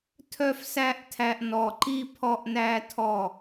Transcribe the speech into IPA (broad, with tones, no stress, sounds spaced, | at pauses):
tʰ œ˦ f s æ˦ ʔ tʰ æ˧ ʔ n ɔ˨ ǃ i˦ pʰ ɔ˦ ʔ n æ˦ tʰ ɔ˦˨